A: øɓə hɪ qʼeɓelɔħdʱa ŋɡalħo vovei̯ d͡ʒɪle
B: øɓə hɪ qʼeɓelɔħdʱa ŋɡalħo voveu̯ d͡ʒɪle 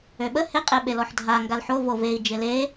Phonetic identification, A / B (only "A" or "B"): A